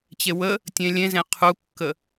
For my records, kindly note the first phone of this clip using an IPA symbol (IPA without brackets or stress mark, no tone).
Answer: t͡ɕ